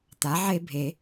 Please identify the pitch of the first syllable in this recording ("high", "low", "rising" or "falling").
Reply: rising